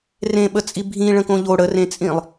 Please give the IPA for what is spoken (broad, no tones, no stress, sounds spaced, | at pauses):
r ẽ ɓ ə t͡sʼ i bʱ ĩ ɭ ə̃ k õ ʎ o ɽ ə r ẽ t͡sʼ ĩ lˠ